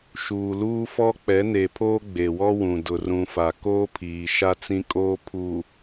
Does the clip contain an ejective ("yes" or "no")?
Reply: yes